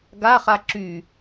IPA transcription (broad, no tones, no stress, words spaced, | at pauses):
ɡaχa ǁy